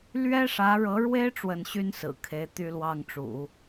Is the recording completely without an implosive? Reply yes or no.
yes